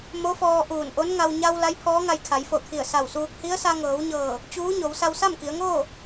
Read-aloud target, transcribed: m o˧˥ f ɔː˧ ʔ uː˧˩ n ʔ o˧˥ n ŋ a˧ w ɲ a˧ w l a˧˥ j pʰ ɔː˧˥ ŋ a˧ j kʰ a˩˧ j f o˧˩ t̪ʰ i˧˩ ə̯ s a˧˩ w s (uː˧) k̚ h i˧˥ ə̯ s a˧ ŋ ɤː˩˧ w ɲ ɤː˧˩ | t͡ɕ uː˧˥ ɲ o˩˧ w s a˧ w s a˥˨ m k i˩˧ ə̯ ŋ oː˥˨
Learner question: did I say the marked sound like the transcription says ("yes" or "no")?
yes